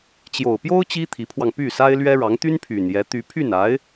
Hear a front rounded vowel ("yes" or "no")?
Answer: yes